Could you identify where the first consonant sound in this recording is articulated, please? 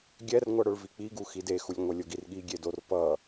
velar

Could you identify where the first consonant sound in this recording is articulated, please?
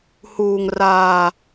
glottal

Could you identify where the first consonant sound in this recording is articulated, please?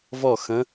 labial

